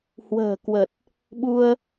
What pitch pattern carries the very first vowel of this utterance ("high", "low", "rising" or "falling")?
low